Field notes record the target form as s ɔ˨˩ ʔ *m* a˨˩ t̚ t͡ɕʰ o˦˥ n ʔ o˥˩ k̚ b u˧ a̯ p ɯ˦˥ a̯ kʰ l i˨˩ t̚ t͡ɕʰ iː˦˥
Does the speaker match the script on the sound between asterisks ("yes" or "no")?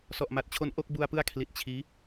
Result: yes